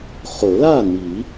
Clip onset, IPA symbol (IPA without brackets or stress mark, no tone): χ